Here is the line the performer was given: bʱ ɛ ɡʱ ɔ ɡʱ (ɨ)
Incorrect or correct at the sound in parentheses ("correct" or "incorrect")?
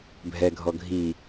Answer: incorrect